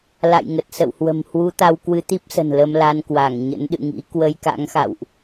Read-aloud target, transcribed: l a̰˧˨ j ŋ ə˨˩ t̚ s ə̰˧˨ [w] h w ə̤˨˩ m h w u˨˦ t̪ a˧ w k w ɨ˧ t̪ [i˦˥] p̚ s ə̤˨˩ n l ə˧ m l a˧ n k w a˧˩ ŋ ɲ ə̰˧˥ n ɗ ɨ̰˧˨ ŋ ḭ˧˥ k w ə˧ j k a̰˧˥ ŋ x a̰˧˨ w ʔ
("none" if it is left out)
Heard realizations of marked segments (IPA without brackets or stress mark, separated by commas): w, i˦˥